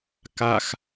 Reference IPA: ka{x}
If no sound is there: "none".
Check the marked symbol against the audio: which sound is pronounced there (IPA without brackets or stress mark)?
x